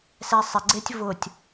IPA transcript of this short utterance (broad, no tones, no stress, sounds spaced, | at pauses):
s ɛ sˤ ɪ ɡ͡ǀ e tʲ v ʊ tʲ